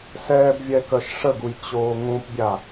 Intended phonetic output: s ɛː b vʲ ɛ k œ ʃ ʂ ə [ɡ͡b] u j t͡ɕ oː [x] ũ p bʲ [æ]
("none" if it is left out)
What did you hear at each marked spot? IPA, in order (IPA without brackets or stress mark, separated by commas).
ɡ, ŋ, a